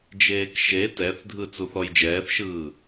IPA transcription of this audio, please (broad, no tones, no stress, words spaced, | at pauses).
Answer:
d͡ʒeːkʃe tɛθdʱɯ t͡suθɔjd͡ʒɛːθʃɯː